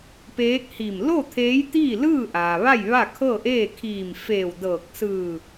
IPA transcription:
peː˧˥k̚hi˧˩m lo˥˨ t̪ʰeː˧˥jt̪iː˥˨lɯː˥˨ ʔaː˩ʋa˥˨j ʋa˥˨kʰɤː˥˨ʔeː˥˨ kʰiː˧˩mfeː˧˩wdɤː˧˩k̚ sɯː˧˩

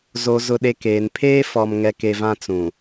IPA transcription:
zo˨zʊ˨ɗe˨ keː˨npʰeː˦ fɔ˨m ŋɛ˨˦ke˨ vã˦ t͡sũ˨

